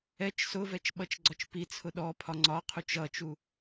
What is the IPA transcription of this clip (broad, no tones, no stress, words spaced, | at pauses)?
ɛt͡ʃ sʊvɛt͡ʃɓʌt͡ʃɡ͡ǀɒt͡ʃ pit͡sʰʊ ɗɔpʰɒ ŋ͡ǀɒqʰut͡ʃ ʌt͡ʃu